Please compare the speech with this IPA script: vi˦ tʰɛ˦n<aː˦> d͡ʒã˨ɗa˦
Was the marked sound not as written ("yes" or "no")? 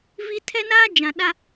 no